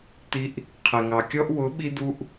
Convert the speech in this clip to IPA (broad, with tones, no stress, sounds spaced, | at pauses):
t̪ i˧ ʔ | qʰ ɛ˨ ŋ ɑ˨ kʲ ɔ˧ ʔ w ʊ˨˦ ɓ i˦ d̪ u˦ ʔ